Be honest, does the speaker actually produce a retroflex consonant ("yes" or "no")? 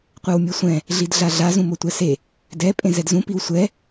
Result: no